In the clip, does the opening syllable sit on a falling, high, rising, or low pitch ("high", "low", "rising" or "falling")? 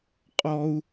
high